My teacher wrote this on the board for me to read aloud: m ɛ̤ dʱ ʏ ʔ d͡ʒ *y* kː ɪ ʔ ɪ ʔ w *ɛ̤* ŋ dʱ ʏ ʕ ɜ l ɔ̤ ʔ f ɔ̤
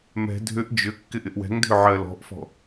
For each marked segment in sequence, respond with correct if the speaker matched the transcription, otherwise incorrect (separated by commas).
incorrect, correct